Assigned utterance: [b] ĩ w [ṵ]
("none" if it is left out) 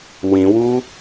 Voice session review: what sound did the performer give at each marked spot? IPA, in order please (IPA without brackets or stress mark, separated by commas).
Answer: w, u